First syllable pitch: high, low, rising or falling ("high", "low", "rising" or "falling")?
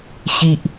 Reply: low